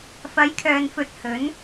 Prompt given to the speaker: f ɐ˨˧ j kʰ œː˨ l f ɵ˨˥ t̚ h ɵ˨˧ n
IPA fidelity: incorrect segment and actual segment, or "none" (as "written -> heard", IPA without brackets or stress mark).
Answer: l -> n